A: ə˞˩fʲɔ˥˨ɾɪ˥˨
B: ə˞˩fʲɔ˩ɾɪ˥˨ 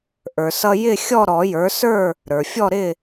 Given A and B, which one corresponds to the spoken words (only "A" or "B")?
A